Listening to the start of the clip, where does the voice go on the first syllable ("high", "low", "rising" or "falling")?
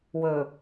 low